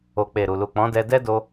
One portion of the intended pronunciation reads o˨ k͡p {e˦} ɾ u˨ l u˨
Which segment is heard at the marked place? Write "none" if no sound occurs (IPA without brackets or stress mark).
e˨